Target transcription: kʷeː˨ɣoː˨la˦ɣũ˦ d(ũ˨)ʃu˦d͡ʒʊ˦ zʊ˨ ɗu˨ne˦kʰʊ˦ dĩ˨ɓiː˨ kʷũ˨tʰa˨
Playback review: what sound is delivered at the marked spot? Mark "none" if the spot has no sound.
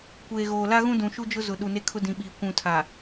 ũ˨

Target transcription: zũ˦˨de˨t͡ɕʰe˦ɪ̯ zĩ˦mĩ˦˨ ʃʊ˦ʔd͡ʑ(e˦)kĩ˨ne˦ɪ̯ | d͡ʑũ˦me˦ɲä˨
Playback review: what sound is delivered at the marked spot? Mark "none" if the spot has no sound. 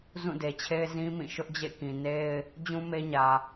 ḛ˦˨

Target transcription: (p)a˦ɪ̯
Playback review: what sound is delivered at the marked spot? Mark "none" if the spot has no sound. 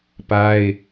p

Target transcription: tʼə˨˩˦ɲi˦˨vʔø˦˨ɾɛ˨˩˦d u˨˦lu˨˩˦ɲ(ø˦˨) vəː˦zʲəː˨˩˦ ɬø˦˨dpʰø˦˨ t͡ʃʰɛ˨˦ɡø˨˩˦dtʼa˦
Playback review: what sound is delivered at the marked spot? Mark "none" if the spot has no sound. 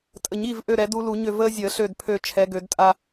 ø˦˨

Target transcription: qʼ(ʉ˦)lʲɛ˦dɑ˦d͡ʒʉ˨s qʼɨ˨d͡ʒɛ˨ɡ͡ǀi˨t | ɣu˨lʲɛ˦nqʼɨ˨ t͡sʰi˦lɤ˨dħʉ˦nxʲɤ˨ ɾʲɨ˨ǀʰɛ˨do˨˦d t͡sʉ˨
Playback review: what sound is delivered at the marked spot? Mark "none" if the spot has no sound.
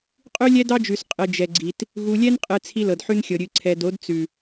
ʉ˦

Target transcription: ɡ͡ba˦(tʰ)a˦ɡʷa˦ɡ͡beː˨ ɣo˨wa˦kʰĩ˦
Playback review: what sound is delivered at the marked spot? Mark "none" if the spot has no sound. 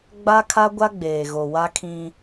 kʰ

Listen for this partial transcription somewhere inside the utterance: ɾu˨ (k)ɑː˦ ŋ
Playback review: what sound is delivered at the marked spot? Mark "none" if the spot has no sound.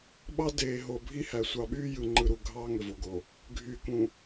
ɡʱ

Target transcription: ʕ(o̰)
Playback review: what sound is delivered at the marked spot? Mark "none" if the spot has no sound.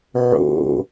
o̰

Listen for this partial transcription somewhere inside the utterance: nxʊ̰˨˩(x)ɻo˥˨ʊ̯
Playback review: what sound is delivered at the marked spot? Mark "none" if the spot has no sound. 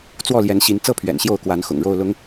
ŋ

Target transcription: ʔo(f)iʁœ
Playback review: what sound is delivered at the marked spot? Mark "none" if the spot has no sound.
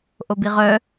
b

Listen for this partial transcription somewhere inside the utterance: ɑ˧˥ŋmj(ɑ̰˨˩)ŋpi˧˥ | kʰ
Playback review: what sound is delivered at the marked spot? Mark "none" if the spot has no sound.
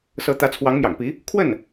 ɑ̰˨˩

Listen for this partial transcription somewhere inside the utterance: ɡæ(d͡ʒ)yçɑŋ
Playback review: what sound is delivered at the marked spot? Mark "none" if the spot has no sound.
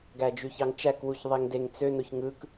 d͡ʒ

